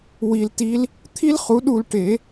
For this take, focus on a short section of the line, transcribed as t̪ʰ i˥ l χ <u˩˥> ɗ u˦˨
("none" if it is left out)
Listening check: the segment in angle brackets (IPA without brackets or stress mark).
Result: u˩˥